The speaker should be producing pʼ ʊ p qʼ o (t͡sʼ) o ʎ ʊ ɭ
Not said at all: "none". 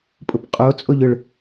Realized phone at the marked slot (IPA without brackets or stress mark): t͡sʼ